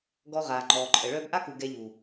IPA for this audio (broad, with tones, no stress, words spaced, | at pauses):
ɡɔ˧ʁaː˨ŋ͡ǃɔː˨ǃʼə˨ ɭœː˧bʔa˦ku˨ ɡɛ˧ʎu˨